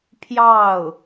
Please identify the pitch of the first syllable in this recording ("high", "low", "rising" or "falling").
falling